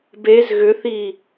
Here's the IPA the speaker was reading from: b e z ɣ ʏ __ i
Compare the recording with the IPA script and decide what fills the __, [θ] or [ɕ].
θ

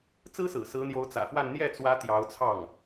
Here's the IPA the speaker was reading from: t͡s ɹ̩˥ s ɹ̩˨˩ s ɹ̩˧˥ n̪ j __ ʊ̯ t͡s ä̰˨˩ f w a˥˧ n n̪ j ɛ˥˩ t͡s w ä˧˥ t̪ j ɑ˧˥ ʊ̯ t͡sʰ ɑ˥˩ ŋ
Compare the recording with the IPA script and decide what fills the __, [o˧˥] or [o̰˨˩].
o˧˥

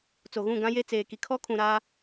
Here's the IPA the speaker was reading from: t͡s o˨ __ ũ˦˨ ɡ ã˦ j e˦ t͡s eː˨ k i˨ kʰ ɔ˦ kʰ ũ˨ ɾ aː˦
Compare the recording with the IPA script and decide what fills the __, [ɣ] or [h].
ɣ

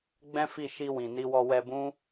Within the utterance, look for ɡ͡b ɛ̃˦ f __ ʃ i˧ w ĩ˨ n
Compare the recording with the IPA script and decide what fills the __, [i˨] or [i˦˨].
i˦˨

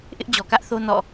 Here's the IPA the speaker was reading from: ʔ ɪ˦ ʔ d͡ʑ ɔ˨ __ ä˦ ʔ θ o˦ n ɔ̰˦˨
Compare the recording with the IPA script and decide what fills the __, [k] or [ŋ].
k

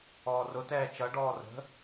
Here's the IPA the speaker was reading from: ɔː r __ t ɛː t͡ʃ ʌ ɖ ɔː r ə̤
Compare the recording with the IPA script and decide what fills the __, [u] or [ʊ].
ʊ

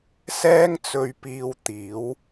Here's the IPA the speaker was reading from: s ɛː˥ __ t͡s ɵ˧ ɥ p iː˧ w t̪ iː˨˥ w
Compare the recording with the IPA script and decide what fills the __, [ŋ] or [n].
ŋ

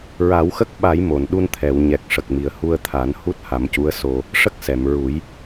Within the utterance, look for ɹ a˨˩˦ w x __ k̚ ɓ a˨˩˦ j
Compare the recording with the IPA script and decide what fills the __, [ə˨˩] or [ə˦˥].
ə˦˥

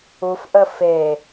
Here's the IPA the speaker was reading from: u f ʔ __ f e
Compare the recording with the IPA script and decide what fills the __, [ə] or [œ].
ə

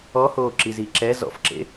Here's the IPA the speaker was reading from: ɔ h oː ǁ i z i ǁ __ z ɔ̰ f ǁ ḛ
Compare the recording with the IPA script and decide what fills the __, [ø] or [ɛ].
ɛ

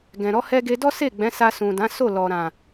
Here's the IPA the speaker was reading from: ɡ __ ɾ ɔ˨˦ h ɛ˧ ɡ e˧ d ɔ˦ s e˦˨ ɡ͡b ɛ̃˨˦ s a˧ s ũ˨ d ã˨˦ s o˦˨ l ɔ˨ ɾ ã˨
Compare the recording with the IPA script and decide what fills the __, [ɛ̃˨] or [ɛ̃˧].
ɛ̃˨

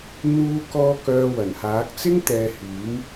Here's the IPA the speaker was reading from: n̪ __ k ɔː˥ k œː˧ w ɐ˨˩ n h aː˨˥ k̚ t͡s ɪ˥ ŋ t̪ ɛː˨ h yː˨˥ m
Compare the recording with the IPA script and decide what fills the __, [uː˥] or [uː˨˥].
uː˥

